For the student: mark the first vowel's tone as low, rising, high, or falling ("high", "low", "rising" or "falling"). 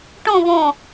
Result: falling